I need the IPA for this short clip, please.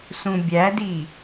s ũ bʲ æ d i

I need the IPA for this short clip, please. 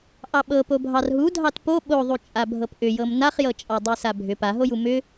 ʔ ɑ ɓ ɤ p o bʱ ɑ r ɦ u dʱ ɑ t p o ɓ o ðˤ u t͡ʃʼ a bʱ ɤ p ʔ ʏ j ɤ m n a χ j ɤ t͡ʃʼ ɑ dˤ u s a bʱ ʏ p a ɦ o j u m ʏ

